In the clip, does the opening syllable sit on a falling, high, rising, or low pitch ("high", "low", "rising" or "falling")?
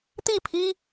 falling